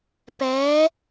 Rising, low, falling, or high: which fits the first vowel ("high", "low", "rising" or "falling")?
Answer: rising